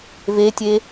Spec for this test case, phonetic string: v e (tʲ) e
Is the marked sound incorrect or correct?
correct